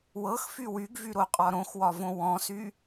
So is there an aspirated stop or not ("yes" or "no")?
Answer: no